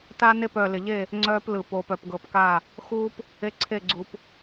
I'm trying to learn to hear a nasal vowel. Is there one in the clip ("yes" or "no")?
no